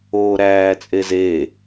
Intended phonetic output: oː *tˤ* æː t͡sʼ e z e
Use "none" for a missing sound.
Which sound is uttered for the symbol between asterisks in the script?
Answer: ɾ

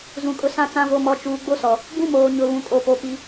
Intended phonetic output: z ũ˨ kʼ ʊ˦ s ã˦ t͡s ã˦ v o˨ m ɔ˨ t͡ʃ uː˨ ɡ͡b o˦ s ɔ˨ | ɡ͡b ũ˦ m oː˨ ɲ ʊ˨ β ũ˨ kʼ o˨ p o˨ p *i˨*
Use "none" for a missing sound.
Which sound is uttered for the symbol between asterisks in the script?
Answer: i˦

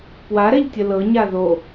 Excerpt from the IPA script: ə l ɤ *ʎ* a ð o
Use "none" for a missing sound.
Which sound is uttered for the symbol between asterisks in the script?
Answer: ɲ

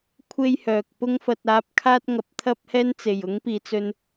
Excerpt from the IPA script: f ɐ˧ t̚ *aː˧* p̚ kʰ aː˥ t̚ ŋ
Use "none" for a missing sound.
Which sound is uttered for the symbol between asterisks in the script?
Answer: aː˧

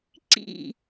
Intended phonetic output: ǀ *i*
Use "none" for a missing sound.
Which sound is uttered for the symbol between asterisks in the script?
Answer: ḭ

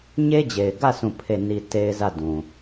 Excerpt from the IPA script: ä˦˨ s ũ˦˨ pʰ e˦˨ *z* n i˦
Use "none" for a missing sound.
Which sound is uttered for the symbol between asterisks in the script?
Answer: none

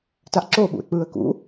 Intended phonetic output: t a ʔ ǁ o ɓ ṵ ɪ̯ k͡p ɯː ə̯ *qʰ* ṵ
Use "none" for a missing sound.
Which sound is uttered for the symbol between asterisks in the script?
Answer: k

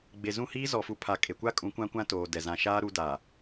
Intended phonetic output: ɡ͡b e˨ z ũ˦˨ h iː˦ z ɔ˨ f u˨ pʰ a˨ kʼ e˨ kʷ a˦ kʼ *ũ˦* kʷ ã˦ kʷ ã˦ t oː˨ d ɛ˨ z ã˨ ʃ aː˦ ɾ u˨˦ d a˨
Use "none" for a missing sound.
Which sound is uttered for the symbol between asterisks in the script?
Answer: ũ˨˦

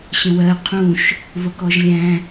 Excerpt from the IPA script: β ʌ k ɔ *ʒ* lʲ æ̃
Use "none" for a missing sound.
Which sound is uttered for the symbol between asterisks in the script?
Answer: ʒ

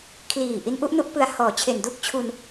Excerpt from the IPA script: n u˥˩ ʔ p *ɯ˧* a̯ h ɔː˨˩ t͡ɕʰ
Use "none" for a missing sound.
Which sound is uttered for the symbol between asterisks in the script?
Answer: ɯ˧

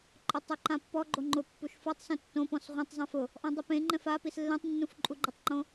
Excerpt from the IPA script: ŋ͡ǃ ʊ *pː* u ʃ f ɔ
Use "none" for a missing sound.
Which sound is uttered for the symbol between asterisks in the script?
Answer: pː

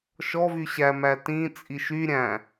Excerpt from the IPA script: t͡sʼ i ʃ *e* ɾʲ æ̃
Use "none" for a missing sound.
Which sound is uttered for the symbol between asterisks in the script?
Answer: y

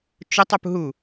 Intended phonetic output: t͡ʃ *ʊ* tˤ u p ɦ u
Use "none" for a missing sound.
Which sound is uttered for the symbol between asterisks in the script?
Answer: ʊ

